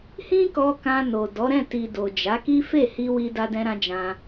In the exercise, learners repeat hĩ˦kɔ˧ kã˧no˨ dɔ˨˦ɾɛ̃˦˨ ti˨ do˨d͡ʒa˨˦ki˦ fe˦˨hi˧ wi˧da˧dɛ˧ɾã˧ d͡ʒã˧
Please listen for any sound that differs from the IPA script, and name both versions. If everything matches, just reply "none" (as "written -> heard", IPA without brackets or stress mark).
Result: ɛ˧ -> ɛ̃˧